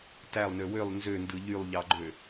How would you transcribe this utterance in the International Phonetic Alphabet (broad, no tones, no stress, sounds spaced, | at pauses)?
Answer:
t æ lˠ n ø w ø lˠ n z ø n d ɯ ʎ y lˠ ʎ ɑ ɡ͡ǃ ø